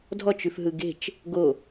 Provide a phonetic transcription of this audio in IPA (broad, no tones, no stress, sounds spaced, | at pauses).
dʱ ɔ t͡ʃ ʉ f ɦ ɯ ɡ e̤ t͡ʃ | ɡ o